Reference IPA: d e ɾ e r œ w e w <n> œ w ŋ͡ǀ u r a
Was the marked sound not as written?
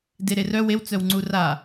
yes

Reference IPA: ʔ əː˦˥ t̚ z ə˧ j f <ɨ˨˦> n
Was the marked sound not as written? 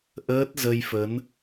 yes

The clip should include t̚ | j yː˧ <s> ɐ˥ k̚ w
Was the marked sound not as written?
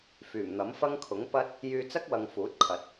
yes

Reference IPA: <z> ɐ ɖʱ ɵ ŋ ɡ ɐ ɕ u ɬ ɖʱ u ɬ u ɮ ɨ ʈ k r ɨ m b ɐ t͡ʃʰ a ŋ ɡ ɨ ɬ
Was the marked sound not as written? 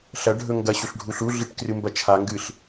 yes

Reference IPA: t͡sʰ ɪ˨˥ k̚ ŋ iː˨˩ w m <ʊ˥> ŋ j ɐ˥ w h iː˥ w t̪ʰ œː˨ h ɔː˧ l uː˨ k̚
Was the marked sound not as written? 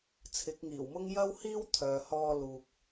no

